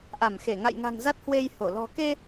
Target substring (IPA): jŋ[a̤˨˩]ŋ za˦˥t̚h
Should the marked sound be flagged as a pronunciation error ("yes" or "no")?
no